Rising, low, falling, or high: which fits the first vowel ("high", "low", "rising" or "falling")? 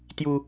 high